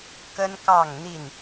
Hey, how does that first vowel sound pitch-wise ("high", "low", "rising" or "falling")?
high